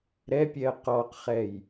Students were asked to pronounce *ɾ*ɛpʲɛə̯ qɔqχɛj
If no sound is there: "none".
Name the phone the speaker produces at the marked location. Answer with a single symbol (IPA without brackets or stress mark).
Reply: ɾ